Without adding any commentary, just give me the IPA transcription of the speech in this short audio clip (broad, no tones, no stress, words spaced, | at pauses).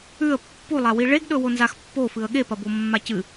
ʉə̯ pːulˠawi ɭeɡɗɵwonzax pːofɨə̯ ɠe pɐbomːacɨ